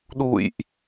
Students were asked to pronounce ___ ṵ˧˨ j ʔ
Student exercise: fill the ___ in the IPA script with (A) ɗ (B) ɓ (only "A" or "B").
A